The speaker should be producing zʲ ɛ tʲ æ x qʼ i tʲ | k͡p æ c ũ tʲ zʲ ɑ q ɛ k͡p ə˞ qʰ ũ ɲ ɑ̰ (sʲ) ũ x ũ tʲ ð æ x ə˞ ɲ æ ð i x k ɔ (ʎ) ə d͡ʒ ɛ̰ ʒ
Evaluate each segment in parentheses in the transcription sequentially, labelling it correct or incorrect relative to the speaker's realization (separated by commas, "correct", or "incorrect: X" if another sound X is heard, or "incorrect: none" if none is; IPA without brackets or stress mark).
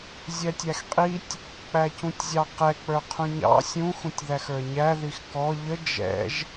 correct, correct